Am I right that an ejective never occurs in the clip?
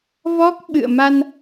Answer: yes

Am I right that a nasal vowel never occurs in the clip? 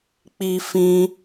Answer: no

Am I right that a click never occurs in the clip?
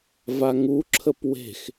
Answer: no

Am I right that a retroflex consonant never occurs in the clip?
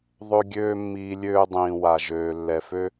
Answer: yes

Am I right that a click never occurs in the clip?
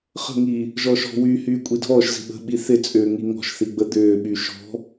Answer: yes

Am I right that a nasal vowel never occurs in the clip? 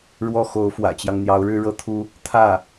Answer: yes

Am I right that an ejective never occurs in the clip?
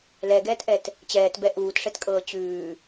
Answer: no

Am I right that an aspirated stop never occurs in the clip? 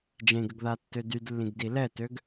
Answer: yes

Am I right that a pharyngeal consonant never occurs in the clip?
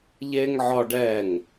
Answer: no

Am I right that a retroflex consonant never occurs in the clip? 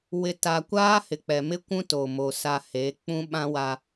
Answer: yes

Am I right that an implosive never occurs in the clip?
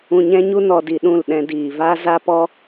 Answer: no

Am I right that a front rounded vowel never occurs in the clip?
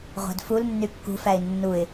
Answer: no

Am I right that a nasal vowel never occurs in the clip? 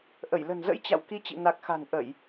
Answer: yes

